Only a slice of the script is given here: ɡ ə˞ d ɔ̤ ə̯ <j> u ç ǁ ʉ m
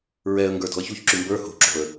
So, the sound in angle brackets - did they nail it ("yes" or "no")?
no